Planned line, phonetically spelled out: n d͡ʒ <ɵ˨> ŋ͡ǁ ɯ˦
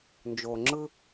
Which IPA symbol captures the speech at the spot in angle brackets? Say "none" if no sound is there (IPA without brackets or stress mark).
o˨